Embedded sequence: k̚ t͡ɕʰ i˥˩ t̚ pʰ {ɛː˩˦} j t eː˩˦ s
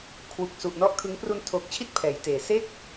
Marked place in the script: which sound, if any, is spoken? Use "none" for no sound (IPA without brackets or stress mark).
ɛː˩˦